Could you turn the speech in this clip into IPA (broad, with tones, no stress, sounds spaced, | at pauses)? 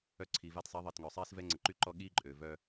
œ˧ ǀʰ i˨ v a˧ t sˤ e˨˦ ðˤ i˨ t ŋ œ˨ sˤ iː˦ s v ɛ˦ ŋ͡ǀ ə˨ ǃ y˦ ǃ ɔ˦ ɠ iː˦ ǃʼ øː˨ v œː˧